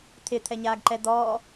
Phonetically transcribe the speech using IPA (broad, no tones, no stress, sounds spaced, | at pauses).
t̪ʰ ɪ t̪ʰ ɛ ɲ aː ɡ ǃ ɛ d̪ ɔː